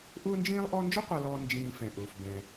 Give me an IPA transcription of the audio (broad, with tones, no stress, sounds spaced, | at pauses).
ʔ ʊː˥ n d͡ʒ ĩː˥ lˠ ʔ ɔ˦ n d͡ʒ ʊ˥ qʷ a˨ l ɔː˨ n d͡ʒ ĩː˨ f ɛ̃˩ ʔ ʊː˩ f b ɛ̃˩